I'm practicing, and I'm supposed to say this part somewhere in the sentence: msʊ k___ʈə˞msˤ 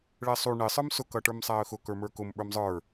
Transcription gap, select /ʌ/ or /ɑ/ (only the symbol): ʌ